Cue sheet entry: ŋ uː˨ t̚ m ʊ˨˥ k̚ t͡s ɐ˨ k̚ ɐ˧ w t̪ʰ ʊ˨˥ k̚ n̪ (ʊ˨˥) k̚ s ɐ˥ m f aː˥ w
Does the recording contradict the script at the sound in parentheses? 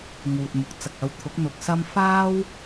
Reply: no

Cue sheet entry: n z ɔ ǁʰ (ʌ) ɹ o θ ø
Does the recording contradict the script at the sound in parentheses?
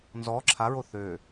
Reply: yes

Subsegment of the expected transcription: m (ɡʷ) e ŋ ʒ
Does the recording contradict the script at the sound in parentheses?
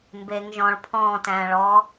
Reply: yes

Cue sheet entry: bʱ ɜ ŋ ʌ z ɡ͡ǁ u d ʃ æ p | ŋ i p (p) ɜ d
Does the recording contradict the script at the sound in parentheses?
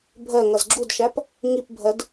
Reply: yes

